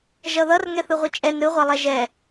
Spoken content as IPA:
ʒ ʌ ð ʌ r ŋ ɛ θ ɯ ʁʷ i t͡ʃʼ ɛ n ɾ ɯ ʁʷ a lˠ ɛ ʒ ɛ

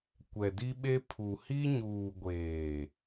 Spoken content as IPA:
kʷ ɛ˨ d i˦ ɓ e˦ pʰ u˨ h i˦ ɲ uː˨ ɡʷ eː˨

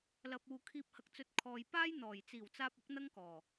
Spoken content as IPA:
l ɐ˨ p̚ uː˨ kʰ iː˧ p̚ h ɐ˧ k̚ t͡s ɵ˧ t̚ kʰ ɔː˨ j p aː˥ j n̪ ɔː˨˩ j t͡s iː˨˩ w t͡s aː˧ p̚ ʊ˨˥ k̚ n̪ ɐ˥ ŋ k ɔː˨˩

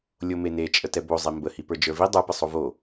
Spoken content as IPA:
lʲ o m e n e t͡ʃʼ ə t ɛ b o zˤ i m b ə h i p ə˞ d͡ʒ ə˞ v i dˤ ə˞ p ə sˤ o v o

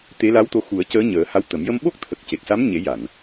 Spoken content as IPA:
t̪ e˧˥ l a˧˥ w t̪ o˧˥ x u˨˩˦ ə̯ c əː˧˥ ɲ əː˨˩˦ h a˧˥ w t̪ ə˨˩˦ m j ə˧ m ɓ o˦˥ k̚ t̪ʰ ə˨˩ k̚ c e˨˩ k̚ s a˧˥ m ɲ e˨˩˦ j a˨˩˨ n

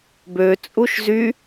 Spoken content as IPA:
b ø t͡sʼ u ʃ z y

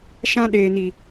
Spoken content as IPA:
ʃ ã˦ ɗ eː˨ n i˨

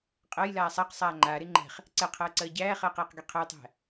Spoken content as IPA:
qʼ ɜ j l aː sˤ a q sˤ aː ŋ͡ǃ aː ɾ e ŋ͡ǃ ɛ̤ χ | ǀ ɛ qʰ ɜː ǀ ɜː ɟ æː χ ɜː q j ə q ɡ e qʰ ə j tˤ æ̤

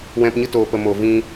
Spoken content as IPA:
w ɛ̃˨ p ɲ ɨ˧ t oː˨ p ə˨ m o˨ v ĩ˧

